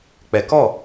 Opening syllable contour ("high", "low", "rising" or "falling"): low